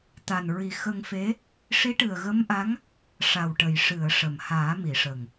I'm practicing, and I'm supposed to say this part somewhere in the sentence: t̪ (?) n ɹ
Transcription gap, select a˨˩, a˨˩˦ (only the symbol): a˨˩